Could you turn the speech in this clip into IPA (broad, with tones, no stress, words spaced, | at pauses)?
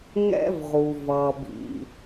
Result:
ŋɛ̰˥vʁu˩ vʌ˩bḭ˩